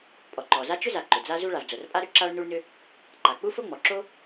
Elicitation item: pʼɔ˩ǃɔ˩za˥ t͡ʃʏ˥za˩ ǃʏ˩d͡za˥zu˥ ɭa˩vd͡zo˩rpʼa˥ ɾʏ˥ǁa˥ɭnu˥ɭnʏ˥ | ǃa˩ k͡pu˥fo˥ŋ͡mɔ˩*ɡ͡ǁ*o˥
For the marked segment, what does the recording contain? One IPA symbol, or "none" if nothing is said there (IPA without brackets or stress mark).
ǁ